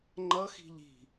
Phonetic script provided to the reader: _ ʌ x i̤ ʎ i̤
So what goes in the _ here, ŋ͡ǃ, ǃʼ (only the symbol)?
ŋ͡ǃ